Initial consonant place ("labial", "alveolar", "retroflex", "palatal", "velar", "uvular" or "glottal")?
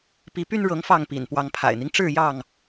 labial